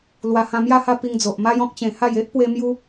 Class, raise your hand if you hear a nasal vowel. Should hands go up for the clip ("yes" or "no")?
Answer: yes